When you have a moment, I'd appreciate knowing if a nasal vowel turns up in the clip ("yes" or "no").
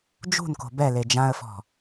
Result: yes